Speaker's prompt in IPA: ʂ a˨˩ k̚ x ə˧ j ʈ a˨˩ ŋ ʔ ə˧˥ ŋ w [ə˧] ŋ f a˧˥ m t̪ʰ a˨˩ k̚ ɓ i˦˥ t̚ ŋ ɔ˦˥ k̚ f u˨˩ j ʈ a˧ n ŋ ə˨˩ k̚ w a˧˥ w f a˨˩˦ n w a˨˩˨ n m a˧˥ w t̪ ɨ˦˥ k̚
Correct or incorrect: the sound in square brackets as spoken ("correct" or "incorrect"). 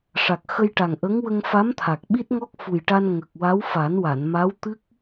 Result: correct